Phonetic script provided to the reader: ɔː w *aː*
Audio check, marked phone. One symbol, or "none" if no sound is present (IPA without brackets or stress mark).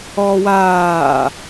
aː